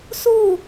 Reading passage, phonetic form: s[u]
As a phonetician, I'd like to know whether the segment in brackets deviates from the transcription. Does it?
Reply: no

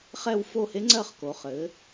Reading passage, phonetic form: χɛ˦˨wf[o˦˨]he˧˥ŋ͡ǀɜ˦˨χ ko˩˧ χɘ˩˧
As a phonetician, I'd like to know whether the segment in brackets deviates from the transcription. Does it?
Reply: no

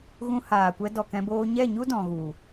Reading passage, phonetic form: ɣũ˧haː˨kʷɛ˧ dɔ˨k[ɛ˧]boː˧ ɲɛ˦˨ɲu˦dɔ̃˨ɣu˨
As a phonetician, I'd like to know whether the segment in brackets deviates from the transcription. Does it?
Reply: yes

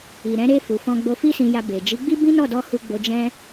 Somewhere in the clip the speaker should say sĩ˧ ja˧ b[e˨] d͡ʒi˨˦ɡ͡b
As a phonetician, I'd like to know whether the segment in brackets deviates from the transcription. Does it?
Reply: no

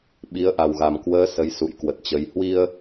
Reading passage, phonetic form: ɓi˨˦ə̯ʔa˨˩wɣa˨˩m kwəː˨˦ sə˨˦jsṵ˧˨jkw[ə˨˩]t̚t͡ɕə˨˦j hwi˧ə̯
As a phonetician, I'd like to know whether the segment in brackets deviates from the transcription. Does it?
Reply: no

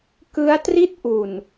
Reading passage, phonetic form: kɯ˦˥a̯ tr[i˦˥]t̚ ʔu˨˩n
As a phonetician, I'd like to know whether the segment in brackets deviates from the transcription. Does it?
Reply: no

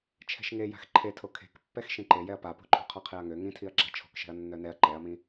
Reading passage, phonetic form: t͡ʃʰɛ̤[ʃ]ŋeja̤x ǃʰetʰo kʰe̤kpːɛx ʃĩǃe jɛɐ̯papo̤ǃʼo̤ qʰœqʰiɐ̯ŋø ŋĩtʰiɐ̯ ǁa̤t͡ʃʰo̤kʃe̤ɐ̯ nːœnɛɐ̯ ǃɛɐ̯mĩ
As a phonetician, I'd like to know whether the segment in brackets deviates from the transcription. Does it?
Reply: no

